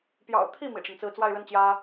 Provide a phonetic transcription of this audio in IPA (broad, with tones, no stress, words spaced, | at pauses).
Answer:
pjɑ̰˨˩ʊ̯t̪ʰi˥˩ mḭ˨˩ʈ͡ʂə˦nt͡sɹ̩˥˧ t͡swa˥˧ɪ̯ɻə˥˩n t͡ɕjä˥